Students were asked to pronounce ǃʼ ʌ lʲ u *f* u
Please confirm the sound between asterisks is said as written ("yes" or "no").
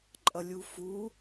yes